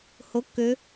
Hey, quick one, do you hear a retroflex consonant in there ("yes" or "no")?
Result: no